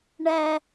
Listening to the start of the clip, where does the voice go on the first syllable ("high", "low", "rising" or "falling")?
high